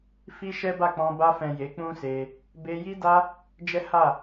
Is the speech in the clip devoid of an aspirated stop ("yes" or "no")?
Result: yes